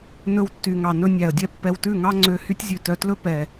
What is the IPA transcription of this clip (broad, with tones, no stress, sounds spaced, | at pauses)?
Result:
n ɵ˧ w tː y˨ ŋ ɑ˨ n ɵ˧ nʲ æ˨ ə̯ dʲ ɛ˦ pː ɛ˧ w t ʉ˦˨ ŋ ɑ˦ ŋ͡ǀ ø˧ h y˦ tʲ zʲ ʉ˨ t œ˧ t l ɵ˦ p ɛ˨